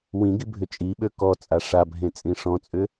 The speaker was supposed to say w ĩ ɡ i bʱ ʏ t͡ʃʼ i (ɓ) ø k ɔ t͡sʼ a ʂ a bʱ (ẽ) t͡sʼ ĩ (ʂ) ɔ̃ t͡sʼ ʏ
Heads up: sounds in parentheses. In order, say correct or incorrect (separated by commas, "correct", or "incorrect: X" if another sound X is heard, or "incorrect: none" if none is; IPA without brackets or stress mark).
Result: correct, correct, correct